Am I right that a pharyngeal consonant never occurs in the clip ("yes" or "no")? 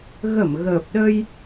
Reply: yes